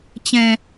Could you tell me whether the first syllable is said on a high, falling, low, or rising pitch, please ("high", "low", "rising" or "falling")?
high